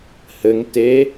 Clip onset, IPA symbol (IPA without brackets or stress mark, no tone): h